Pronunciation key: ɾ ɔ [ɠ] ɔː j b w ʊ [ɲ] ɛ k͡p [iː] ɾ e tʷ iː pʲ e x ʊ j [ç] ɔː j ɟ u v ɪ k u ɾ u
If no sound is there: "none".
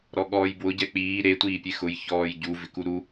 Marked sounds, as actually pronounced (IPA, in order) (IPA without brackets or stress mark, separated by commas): ɠ, ɟ, iː, ç